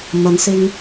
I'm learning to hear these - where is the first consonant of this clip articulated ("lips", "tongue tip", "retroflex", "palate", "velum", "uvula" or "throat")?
lips